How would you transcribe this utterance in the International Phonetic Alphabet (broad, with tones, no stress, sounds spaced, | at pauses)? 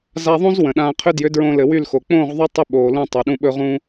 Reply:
z a˧ ðˤ ũ˦ z w ə̃˨ ɗ ãː˧ qʰ ʏ˧ d j ʏ˨˦ d ɹ õ˧ l ɘ˨ w y˦˨ l x o˨ k͡p õː˦˨ ʁ ðˤ y˧ tˤ ʏ˦ ɓ oː˨ l ũ˦˨ tˤ o˨ ɗ ũ˧ ɓ ɵ˦ ʁ ũː˦